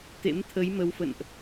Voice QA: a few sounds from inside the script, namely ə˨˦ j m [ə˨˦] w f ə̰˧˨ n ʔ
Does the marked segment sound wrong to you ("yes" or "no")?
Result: no